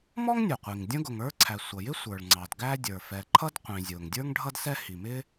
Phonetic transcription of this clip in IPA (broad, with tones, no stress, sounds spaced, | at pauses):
m ɔ˥ ŋ nʲ ʊ˩ qʷ i˩ ŋ dʲ ə̃˥ ɡ ʊ˩ ŋ ə˞˥ ǀʰ æ˩ sʷ ʌ˩ j ɪ˥ sʷ ə˞˩ ɭ ŋ͡ǀ ɑ˩ d ɡ æ˥ dʲ ə˞˩ f ɛ˩ ǃʰ ʌ˥ d qʷ ĩ˩ zʲ ʊː˩ ŋ dʲ ə˞˥ ŋ ɖʱ ʌ˥ d s ɛ˥ h i˩ m ɪ˥